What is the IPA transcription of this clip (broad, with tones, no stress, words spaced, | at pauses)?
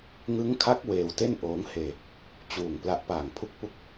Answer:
ŋɯ˦˥ŋkʰa˦˥k̚ weː˧wte˥˩n ʔoː˦˥ŋ heː˧ | t͡ɕuː˨˩ŋ pla˦˥ʔpaː˨˩ŋpʰu˥˩k̚ pu˥˩k̚